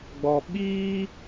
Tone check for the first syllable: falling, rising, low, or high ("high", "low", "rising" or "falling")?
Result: low